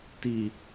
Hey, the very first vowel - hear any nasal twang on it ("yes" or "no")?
no